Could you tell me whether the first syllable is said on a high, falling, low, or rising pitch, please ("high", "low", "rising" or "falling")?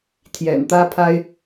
low